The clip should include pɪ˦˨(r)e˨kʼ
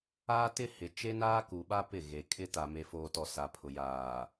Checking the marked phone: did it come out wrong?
yes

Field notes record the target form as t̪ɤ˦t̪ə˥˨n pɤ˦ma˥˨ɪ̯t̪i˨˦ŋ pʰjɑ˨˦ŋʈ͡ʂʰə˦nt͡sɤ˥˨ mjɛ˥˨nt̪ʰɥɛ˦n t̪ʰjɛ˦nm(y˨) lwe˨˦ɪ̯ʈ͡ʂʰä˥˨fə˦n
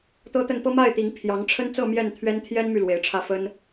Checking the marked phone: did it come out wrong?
no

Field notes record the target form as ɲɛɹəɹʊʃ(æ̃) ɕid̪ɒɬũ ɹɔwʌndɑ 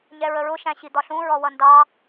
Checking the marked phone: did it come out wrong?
no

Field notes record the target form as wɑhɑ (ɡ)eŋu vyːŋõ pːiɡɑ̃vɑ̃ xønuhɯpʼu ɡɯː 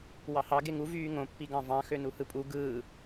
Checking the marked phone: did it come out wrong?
no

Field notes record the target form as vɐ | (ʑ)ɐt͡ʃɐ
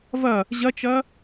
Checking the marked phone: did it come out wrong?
no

